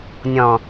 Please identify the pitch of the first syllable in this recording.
low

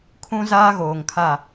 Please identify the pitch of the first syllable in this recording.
high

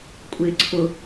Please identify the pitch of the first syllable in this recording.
low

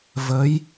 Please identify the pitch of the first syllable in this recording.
rising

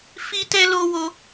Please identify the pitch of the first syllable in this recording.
high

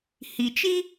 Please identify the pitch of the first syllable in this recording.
low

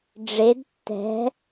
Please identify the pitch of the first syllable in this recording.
rising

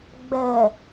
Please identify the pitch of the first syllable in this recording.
low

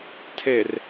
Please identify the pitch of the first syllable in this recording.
low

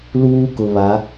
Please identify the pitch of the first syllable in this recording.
high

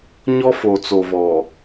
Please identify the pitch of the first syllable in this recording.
high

